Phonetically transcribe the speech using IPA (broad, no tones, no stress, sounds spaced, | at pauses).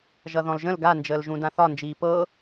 ʒ ʌ ð ɔ̃ l ʒ ə̃ l ɡ a n d͡ʒ əː l ʒ ũ d ã θ ɒ n d͡ʒ iː p ɤ